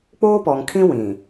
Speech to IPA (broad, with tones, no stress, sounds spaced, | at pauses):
k͡p oː˦ p ɔ˨ ŋ kʰ ĩ˦ w ĩ˨